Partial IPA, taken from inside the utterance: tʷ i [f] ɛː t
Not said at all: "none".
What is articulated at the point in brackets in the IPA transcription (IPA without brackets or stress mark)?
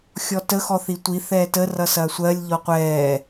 θ